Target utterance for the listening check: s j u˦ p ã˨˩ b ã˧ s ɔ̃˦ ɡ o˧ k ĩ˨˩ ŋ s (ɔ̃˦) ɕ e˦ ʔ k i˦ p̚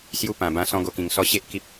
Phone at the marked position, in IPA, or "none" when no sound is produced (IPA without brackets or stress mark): ɔ˦